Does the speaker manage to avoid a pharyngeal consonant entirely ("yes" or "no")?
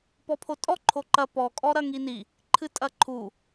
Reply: yes